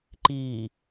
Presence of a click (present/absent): present